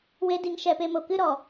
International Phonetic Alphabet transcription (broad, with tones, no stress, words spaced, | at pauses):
we˦di˧ŋʃɛ˧ pe˧mo˨kɨ˦ ɾɔ˨